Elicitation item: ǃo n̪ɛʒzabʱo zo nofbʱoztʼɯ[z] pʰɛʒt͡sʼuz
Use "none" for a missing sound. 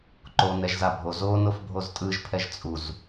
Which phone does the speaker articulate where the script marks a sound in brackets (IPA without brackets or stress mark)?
ʒ